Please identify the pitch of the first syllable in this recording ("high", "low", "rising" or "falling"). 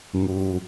low